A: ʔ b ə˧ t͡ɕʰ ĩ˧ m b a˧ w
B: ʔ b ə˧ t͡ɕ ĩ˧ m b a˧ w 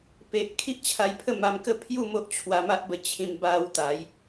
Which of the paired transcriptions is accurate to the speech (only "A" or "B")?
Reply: A